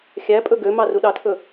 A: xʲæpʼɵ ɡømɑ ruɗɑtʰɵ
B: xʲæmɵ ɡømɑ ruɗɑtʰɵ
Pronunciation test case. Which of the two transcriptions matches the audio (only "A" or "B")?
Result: A